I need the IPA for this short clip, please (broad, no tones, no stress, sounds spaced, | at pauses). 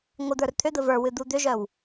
ŋʷ ə d̪ ə˞ r t̪ʰ ʏ d̪ ə v ə˞ w ɨ d̪ u d̪ ʏ ʒ œ w